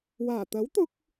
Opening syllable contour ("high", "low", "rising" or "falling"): low